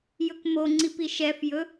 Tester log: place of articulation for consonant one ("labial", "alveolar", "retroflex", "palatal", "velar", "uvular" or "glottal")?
palatal